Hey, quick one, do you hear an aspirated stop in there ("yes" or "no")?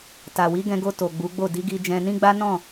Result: no